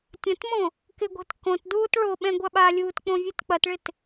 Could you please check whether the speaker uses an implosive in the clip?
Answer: yes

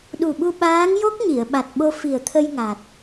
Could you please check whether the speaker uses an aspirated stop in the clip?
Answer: yes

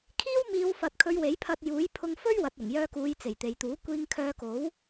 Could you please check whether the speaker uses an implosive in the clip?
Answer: no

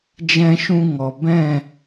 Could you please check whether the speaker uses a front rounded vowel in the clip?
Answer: no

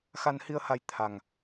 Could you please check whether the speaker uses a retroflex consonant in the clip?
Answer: no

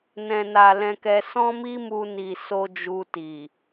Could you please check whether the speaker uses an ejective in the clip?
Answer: no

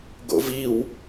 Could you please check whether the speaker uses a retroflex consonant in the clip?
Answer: no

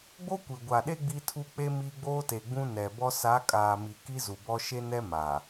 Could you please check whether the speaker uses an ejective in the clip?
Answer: yes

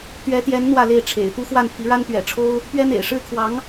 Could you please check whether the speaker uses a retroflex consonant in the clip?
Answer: yes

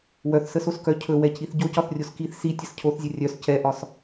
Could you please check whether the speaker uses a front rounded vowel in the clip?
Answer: yes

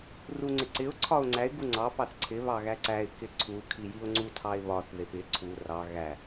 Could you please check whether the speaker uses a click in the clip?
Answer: yes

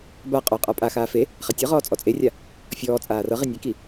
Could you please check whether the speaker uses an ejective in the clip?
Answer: yes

